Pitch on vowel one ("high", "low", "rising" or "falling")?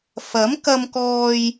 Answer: rising